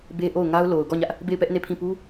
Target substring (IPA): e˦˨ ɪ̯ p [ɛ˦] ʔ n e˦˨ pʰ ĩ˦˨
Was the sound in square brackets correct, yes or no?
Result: yes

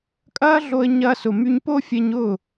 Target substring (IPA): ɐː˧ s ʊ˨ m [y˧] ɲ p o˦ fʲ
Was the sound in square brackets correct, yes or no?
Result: yes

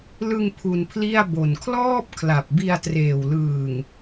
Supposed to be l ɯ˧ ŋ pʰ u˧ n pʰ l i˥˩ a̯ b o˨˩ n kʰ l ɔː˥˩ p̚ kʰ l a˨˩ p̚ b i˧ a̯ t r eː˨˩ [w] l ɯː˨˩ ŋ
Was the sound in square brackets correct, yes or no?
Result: yes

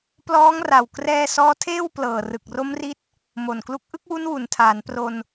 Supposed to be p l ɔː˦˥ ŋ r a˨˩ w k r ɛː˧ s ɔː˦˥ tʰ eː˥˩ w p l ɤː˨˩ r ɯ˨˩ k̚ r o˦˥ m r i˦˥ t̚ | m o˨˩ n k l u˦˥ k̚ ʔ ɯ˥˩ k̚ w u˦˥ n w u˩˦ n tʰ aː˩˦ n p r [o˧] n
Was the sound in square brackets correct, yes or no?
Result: yes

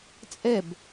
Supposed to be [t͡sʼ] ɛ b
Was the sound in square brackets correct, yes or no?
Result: yes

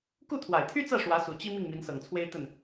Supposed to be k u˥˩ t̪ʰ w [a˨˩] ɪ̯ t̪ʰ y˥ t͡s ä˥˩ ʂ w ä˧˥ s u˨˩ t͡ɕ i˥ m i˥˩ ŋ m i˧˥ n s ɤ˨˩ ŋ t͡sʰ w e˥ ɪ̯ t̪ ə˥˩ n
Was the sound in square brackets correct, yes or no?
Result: yes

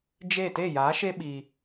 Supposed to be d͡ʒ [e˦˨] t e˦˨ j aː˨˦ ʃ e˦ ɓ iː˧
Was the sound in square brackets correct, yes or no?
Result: yes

